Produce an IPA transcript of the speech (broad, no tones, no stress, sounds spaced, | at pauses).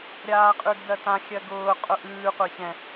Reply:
ɾʲ aː qʼ ʉ ɡ d ɜ t ã xʲ ɜ ɡ ʊː qʼ ʊ ʔ ʉː qʷ ɛ ç ɛ̃